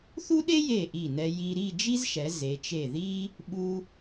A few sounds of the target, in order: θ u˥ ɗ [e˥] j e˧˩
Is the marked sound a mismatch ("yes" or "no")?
no